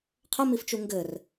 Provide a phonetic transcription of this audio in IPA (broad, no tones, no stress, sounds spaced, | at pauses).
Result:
qʰ ə m i f t͡ʃ u ŋ ɡ ɘ r